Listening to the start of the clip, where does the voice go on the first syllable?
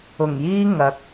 low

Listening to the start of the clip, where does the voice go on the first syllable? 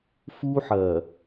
high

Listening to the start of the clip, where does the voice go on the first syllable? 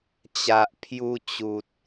low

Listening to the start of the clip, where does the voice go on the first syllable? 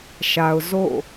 low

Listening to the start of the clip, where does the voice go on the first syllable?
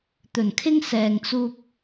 low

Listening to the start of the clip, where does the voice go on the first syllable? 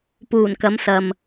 low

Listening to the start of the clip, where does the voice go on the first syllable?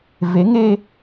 rising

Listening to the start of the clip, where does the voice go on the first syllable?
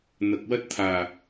low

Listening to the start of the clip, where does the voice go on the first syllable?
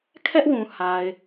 high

